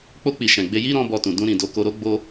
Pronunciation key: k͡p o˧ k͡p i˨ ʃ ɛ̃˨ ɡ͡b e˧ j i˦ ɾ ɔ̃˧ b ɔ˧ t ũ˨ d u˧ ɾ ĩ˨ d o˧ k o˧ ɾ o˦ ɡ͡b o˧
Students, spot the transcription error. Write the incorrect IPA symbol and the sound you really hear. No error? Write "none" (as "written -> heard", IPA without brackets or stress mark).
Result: u˧ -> ũ˧